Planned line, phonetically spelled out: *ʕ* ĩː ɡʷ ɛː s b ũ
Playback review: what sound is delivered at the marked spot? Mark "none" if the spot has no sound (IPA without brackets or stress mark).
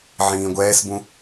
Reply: ʕ